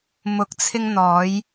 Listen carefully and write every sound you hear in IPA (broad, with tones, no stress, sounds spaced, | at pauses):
m ʊ˨˥ k̚ t͡sʰ ɪ˧ ŋ n̪ ɔː˨˧ j